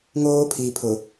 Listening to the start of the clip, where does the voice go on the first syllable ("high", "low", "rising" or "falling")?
high